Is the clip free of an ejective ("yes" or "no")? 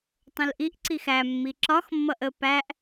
yes